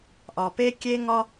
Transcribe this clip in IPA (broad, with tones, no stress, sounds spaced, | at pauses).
ʔ ɒ˩ p e˥ kʲ e˥ ŋ ɒ˥